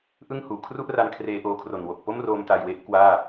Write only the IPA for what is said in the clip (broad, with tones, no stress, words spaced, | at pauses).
ʔɯ˥˩ŋhuː˩˦ kʰru˥˩ʔra˧n kʰreː˧ʔoː˧kʰro˨˩nwo˨˩k̚ po˥˩mroː˧m ta˧jwe˦˥ʔ kwaː˥˩